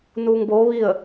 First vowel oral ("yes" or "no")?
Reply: yes